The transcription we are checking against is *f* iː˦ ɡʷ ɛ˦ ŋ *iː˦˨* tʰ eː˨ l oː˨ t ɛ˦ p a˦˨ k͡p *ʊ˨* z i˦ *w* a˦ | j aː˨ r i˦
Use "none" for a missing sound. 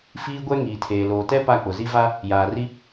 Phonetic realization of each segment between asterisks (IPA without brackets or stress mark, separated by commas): f, iː˨, ʊ˨, v